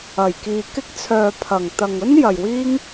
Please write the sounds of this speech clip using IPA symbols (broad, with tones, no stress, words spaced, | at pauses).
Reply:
ɐ˨˩jkiː˨ kɪ˧k̚t͡sʰœː˨ pʰɐ˨˩ŋt̪ɐ˨ŋɵ˥njɐ˨j wiː˥ŋ